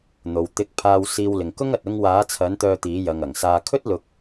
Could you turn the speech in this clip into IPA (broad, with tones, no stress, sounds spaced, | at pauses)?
n̪ o˨ w t̪ ɪ˧ k̚ pʰ aː˧ w s iː˧ w l ɪ˨ ŋ k ʊ˥ ŋ ɐ˨ t̚ ʊ˧ ŋ w aː˨˧ t͡sʰ ɐ˨˧ n t̪ œː˧ t̪ iː˨˧ j ɐ˨ ŋ ɐ˨˩ ŋ s aː˧ kʰ ɵ˥ t̚ l ʊ˧ k̚